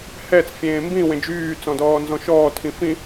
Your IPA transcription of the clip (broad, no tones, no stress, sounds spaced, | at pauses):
h ɛ t͡s fʲ ẽː m b ĩ w ẽ d͡ʒ yː t͡s ɔ̃ d ɔː n z ɔ̃ ʃ ɔː tʰ ĩ f ĩ